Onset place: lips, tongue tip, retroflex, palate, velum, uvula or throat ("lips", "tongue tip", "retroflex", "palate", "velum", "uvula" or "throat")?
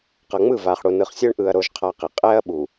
uvula